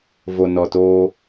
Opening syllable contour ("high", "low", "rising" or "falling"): low